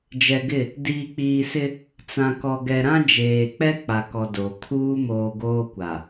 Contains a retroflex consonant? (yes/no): no